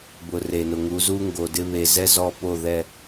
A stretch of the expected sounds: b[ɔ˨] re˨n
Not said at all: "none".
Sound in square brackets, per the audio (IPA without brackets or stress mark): ʊ˨